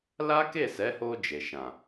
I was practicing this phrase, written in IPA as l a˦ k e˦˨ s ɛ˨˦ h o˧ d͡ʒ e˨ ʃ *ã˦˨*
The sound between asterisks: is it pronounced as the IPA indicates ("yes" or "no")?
no